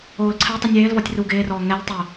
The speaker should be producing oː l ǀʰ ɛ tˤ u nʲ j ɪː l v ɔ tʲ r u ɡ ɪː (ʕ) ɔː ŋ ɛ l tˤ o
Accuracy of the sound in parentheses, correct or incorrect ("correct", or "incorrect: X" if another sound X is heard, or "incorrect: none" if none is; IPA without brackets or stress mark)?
incorrect: r